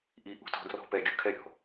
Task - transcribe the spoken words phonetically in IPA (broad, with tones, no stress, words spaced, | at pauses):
ʔi˦ ʔṳ˦tɔ̤˦ drɔ̤˦pɛ˨ ɡʲu˦˨kʰɛ˦ɾʲɔ̤˨